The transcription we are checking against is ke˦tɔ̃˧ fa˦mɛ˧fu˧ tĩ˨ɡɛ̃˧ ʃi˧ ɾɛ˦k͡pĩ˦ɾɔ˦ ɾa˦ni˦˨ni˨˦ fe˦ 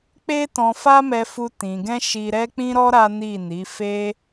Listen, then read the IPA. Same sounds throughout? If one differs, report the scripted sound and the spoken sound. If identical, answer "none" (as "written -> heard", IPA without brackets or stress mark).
k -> k͡p